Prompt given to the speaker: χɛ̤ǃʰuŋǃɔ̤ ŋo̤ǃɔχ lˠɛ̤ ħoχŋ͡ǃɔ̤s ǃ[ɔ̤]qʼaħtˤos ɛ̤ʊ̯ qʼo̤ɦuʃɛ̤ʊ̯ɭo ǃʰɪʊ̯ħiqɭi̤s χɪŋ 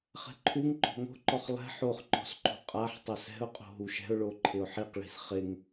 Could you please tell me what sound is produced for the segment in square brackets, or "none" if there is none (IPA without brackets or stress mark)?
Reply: o̤